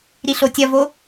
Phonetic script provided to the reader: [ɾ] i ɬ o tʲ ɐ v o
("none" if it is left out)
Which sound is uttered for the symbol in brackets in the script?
ɾ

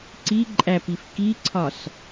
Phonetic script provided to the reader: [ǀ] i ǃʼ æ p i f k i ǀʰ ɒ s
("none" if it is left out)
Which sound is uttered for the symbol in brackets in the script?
ǀ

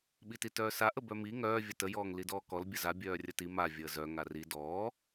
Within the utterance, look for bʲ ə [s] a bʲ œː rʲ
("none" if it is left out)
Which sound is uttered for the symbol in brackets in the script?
z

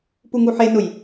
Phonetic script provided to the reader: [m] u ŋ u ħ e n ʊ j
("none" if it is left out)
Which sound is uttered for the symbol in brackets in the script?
p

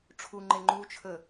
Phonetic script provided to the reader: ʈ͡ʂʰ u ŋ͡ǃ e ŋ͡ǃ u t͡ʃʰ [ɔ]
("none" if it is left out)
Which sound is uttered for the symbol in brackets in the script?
ə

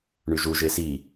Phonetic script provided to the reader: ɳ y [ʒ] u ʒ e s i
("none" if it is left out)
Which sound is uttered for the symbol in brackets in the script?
ʒ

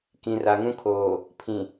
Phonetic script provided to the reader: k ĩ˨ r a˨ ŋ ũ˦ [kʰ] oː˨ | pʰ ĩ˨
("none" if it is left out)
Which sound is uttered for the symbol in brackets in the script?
kʰ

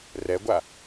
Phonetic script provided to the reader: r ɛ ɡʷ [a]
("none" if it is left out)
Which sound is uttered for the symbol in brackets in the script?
a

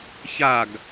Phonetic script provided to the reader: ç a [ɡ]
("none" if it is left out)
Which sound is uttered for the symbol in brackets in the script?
ɡ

